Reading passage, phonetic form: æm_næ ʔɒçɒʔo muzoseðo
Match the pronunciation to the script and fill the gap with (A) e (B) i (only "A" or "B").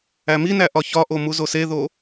B